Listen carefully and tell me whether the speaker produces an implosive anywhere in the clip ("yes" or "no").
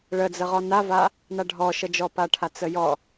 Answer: no